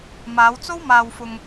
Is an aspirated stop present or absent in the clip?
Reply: absent